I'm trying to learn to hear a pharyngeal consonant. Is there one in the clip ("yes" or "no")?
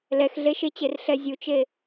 no